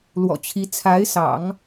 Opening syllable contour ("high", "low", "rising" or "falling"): low